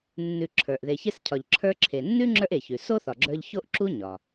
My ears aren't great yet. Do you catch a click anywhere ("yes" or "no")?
yes